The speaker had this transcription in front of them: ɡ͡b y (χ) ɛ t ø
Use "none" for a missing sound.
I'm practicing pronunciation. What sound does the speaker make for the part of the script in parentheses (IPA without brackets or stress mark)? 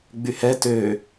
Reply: h